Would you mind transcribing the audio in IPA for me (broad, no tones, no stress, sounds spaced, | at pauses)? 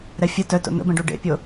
ɾ ɛ fʲ ə t œ t o̰ n̪ ə̰ b ɛ̃ ɖ u ɖ ḛ pʲ o